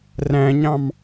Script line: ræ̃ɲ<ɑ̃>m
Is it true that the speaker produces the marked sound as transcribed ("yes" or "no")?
yes